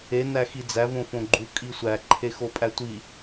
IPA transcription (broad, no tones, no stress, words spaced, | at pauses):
e næxid͡zæ võfõɡ͡ǃu kʼisʷæ ǃʰexopʼætʷi